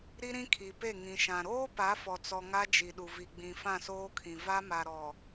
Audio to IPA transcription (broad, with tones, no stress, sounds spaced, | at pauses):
ɾ i˦ ɾ ĩ˦ kʰ i˨ p e˦˨ ŋ ĩ˨ ʃ ã˨ ɾ oː˦ p a˨˦ f ɔ˨ t͡s ɔ˨ ŋ a˦ d͡ʒ i˨ ɗ u˨ v i˨ ɡ͡b ĩ˨ f ã˦˨ s oː˦ kʰ ĩ˨ v a˦ m a˨ ɾ ɔ˨